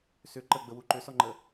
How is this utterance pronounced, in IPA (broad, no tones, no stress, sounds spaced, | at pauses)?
s ʏ ǃ ə ɡ͡b ə w u ǃ ʏ s ɔ ŋ͡ǃ ə